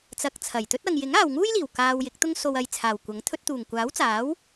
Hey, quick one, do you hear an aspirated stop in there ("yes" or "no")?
yes